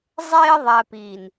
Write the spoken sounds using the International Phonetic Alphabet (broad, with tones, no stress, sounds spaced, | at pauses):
zˤ eː˧ ðˤ æ˨ p iː˨ n